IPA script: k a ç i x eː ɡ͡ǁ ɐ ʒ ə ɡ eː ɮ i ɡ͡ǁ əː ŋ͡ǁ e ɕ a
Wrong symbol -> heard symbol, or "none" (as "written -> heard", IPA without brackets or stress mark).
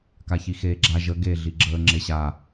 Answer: ɐ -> a